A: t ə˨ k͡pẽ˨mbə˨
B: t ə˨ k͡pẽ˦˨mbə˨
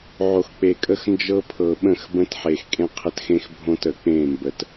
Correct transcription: B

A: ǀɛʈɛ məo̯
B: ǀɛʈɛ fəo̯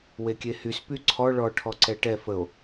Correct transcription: B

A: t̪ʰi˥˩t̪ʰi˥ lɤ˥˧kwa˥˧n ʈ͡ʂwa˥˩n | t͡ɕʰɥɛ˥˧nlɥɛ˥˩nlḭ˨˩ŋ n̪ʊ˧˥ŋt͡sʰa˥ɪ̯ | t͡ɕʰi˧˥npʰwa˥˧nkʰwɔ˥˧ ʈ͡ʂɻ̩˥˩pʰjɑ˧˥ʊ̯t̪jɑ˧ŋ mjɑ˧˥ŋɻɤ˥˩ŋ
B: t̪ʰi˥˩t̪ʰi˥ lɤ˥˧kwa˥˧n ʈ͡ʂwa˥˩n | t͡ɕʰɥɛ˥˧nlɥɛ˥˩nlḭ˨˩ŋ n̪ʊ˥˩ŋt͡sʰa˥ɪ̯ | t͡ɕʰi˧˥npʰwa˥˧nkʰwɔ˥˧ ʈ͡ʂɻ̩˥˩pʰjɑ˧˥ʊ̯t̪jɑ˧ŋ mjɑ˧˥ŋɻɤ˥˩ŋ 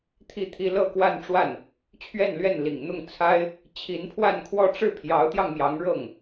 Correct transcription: B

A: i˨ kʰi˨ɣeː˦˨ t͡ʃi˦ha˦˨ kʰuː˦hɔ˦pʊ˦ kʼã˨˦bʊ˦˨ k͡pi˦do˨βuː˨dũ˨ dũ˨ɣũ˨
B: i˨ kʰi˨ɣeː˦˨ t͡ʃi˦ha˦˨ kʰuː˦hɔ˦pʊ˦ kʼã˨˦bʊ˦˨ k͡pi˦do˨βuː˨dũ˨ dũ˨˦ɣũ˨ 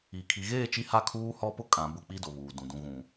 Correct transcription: A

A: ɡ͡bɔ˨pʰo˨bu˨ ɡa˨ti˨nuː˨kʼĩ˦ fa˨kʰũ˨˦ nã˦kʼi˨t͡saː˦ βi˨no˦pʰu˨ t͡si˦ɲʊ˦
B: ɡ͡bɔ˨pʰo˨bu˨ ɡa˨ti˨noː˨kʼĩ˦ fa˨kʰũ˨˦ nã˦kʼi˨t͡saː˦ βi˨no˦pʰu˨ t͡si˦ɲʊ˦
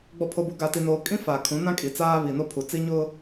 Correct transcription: B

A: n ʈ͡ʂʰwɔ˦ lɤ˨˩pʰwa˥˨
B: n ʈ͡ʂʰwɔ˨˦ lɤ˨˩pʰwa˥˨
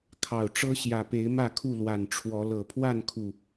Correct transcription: B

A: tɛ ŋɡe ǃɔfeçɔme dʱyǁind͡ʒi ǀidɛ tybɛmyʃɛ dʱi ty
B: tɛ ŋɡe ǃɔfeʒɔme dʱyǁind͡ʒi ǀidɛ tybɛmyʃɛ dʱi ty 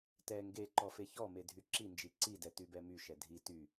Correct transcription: A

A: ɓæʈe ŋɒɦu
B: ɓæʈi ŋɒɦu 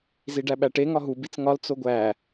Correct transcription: A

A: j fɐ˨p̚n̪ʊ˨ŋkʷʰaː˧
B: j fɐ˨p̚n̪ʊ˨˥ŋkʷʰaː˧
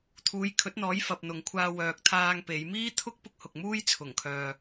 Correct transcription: A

